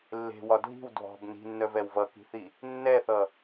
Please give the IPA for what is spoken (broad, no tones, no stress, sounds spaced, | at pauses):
lː e̤ w ɒ dʱ i̤ w dʱ ɔ̤ b n i̤ nː œ v ɛ w v ʌ k i̤ θ i | nː ɛ θ ʌ